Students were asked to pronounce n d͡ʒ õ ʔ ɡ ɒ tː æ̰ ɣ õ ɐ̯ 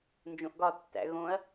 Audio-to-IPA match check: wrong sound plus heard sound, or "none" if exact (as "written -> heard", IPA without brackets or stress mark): none